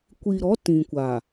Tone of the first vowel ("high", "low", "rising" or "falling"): low